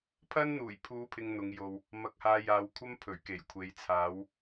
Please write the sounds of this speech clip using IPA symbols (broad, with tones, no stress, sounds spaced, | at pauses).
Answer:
pʰ ɐ˥ n n̪ uː˨˩ j pʰ uː˨˧ pʰ ɪ˨ ŋ n̪ ʊ˨˧ ŋ j o˧ w | m ɐ˨˥ k̚ h aː˨˧ j aː˨ w kʷʰ ɐ˥ m pʰ ɵ˨˩ ɥ k e˨˩ j kʷʰ e˨˥ j t͡sʰ aː˨˥ w